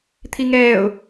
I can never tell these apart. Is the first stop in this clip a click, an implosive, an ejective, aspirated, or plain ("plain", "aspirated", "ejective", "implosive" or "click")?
aspirated